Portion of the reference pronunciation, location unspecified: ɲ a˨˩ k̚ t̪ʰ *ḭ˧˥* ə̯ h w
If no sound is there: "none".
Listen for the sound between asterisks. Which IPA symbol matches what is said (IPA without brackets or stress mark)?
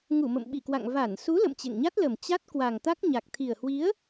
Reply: i˨˩